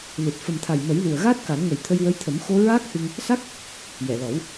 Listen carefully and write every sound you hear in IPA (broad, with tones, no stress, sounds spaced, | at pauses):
l ɨ˨˩ t̚ f ə˨˩ m t̪ʰ a˨˩ j m ə˨˩˦ j l u˨˩ ə̯ ɣ aː˦˥ t̚ k a˨˩˦ n ŋ ə˨˩ j t̪ʰ ə˧ j w ə˧˥ j t̪ʰ ə˨˩˦ m x o˧ ɹ aː˦˥ k̚ h ɨ˧ ŋ | s a˦˥ k̚ | j ɛ˨˩˨ l ɔ˨˩˦ w